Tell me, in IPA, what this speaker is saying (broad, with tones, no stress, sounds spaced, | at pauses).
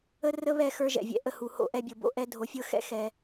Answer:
ə˦ r ə˦ β ɛ˦˨ x ə˞˧ ʒ ɛ̰˨ vʲ ɛ̰˨ ʔ ə˧ h u˨ h o̰˦˨ ʔ ɛ˧ bʲ ɤ˨ b o̰˧ ʔ ɛ˧ dʱ o˨ fʲ ɤ˧ x ɛ̰˧ x ɛ˨